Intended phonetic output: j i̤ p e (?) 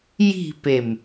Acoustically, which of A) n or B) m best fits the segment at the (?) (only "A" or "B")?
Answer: B